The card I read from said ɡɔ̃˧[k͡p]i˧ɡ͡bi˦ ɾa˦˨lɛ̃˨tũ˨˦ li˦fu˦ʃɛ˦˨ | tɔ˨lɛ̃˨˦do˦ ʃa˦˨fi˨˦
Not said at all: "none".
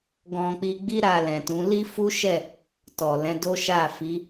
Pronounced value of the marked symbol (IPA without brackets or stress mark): k͡p